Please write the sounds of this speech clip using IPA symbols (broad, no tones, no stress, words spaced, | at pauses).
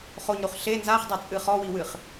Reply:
χoɲɾuχ ɬe nzaχdˤet͡sʼɨ χɔwiwɨχ